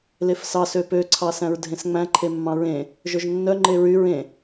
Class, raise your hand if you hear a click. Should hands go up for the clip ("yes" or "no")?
yes